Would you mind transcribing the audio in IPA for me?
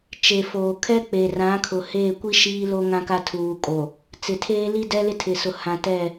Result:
t͡ʃe˨foː˨ kʰɛ˦k͡pe˨rã˨˦kʰʊ˨ heː˦˨kʷi˦ ʃiː˦lo˦ŋã˦ka˦ tʰuː˨kʼo˨ | t͡sɪ˨tʰeː˦li˦ dɛ˦lɪ˦tʰɪ˨sʊ˨ hã˨tɛ˦˨

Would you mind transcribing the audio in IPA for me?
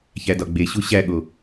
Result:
çædɒɡ͡beɕu ɕæɠo

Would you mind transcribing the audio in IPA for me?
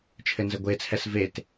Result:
t͡ʃʰɘnzɘɡʷet͡sʰɛs vet

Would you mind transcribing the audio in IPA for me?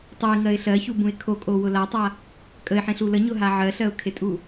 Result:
tˤoɪ̯ŋɜɪ̯ ɬɜçubũɪ̯ kʰokʼowʊ latˤa | kʼəɪ̯ħẽɬu ləɲʊɦa ʕɜɬɜʊ̯kʰetʼu

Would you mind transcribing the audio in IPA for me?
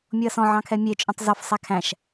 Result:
mʲoɐ̯sɔ̃ ʕɑ̃kʰɛmʲe t͡ʃʼœ̃tˤzɔf sˤækʰæ̃ʃ

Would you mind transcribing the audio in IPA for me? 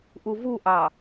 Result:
ʔuvuʔɑ

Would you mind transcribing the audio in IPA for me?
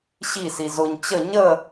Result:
ɕi sizʊɲ t͡ɕə ɲə

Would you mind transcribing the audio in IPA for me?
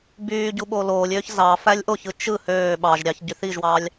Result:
byːɟu ɓoloːlʲøːç zɑ fælʲʔoçɯ t͡ʃɯ høː ɓɑʒɾʲɑç ɟyθiʒwɑːlʲ

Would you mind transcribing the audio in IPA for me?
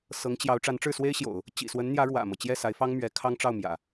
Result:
sɤ˧˥ŋt͡ɕjɑ˧˥ʊ̯ ʈ͡ʂa˧˥nʈ͡ʂɻ̩˥˩swe˥ɪ̯ɕjo̰˨˩˦ʊ̯ | t͡ɕḭ˨˩swə˧˥nn̪jä˧˥ ɻwä̰˨˩mɤ˦ t͡ɕjɛ˥˩sa˧˥ɪ̯fɑ˥ŋ mɥɛ˧˥kʰɑ˥ŋʈ͡ʂɑ˥˩ʊ̯ mjä̰˨˩˦

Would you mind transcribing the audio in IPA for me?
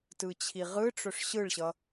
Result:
tɯt͡ɕʰiʁɯʈ͡ʂɵʂ ɕɯɭɕʌ

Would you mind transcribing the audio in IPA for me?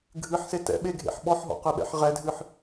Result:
ɡʱɨħse tɛ̰ɓeɡʱḛħ ɓɔħɦɔ̰qɨɓɛ̰ħ ʁɛdʱɨħ

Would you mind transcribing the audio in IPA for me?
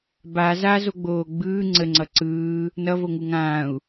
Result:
ba zazoɡ͡boː ɡ͡bɯː ŋ͡ǀəŋ͡ǀʌ ǀɯː | nʌvoŋu ŋãːu̯

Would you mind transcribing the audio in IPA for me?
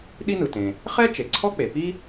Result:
ɗi˥nɯ˩tẽ˩ | χɛ˥ t͡ʃe˩ǀʰɔ˥k͡pe˩ pi˥

